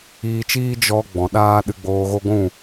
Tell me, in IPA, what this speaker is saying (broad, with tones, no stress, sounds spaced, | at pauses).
iː˧ t͡ʃ iː˦ d͡ʒ ɔ˧ ɡ͡b ɔ̃˨ ɗ aː˦ ɗ ɨ˧ ɡ͡b oː˧ ɣ o˦ ɡʷ ũ˦˨